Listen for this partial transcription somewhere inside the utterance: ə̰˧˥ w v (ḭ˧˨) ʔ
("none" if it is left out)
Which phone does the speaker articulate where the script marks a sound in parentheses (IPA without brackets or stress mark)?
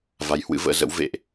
ḛ˧˨